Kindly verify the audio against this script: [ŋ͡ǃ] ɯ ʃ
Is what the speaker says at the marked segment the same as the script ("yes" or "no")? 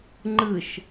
yes